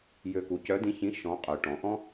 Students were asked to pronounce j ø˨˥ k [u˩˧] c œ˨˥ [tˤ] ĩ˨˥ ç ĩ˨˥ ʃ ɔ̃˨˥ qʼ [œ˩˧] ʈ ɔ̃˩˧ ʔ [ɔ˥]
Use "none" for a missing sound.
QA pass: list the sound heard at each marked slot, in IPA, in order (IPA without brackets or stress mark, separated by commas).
u˩˧, d, œ˩˧, ɔ̃˥